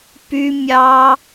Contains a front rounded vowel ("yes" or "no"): yes